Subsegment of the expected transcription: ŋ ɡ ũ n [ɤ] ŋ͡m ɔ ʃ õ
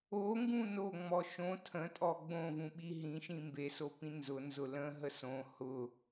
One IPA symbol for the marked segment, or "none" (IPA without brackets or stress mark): o